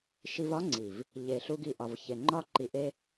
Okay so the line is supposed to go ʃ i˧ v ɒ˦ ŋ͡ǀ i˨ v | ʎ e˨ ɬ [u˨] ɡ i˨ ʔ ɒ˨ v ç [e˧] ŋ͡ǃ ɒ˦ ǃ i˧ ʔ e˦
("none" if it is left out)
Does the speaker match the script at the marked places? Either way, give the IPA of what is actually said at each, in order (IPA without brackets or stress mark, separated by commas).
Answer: u˧, e˨